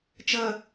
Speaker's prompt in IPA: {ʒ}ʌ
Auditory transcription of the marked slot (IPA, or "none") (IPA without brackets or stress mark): t͡ʃ